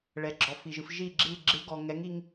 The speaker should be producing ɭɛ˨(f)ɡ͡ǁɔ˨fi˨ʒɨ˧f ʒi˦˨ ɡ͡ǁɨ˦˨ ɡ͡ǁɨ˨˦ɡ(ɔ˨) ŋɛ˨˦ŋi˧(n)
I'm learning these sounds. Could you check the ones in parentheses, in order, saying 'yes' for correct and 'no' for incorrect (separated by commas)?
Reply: no, yes, no